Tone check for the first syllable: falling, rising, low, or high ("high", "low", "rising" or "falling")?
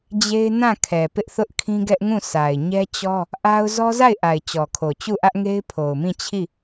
high